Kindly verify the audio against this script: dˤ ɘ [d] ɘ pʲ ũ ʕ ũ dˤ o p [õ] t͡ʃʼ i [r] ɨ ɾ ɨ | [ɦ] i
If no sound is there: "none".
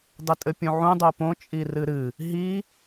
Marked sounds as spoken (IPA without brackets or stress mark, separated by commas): tʼ, õ, r, ɦ